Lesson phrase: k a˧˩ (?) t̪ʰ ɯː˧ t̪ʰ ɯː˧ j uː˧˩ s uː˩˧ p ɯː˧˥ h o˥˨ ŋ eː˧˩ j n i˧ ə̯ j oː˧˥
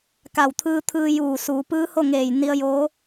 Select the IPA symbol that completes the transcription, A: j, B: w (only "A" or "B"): B